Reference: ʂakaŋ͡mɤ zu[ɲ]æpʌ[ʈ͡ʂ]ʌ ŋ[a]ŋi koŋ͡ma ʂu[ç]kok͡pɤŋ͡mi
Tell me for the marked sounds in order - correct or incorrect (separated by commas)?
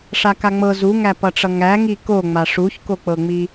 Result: incorrect, correct, incorrect, correct